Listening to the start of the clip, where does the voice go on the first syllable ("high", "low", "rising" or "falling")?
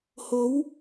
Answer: rising